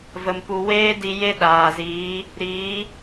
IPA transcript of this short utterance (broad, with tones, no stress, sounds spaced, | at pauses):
v ə˧ m p u˧ w eː˦ d i˧ j e˦ ɗ aː˨ z iː˨˦ | ɾ iː˨˦